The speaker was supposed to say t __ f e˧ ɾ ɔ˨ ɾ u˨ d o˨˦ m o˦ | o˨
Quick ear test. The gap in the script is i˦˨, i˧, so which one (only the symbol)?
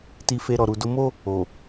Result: i˧